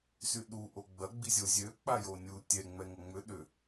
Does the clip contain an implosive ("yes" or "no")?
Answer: yes